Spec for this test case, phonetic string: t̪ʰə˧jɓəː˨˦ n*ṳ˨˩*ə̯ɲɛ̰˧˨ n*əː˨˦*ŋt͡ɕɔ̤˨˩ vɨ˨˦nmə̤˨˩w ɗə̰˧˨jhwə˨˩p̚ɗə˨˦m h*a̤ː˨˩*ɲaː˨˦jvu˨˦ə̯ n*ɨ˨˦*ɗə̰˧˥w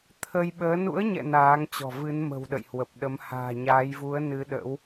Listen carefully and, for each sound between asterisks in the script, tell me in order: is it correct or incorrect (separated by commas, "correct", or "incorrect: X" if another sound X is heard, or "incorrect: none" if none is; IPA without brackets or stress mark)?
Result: incorrect: ṵ˧˥, incorrect: aː˨˦, correct, correct